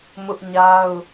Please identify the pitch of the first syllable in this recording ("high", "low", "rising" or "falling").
high